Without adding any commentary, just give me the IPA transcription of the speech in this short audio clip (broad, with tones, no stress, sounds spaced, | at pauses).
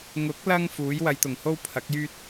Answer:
ŋ ʊ˨˥ k̚ l ɐ˧ ŋ f uː˨˥ j w ɐ˨˧ j t̪ ʊ˨˩ ŋ h o˥ w pʰ ɐ˨˥ k̚ j yː˥ t̚